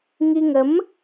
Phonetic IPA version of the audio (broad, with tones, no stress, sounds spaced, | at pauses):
ŋ i˧ ŋ ə˨˦ m